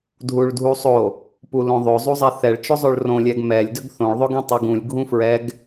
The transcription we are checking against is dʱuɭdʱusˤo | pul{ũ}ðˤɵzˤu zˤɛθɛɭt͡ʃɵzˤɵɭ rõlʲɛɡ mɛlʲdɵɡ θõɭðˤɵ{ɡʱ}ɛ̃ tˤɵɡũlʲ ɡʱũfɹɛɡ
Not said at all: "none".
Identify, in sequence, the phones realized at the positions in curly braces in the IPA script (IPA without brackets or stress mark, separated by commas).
õ, ɡ